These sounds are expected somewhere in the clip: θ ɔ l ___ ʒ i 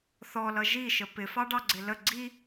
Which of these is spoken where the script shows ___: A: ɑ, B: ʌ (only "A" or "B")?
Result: B